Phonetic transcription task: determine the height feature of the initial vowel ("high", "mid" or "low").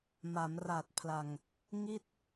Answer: low